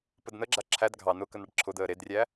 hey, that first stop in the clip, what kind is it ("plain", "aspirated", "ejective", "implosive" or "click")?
plain